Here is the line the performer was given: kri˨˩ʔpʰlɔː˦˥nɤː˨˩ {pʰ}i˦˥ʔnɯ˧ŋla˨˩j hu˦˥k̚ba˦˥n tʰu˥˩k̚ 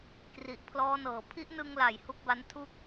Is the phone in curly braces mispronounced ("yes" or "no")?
no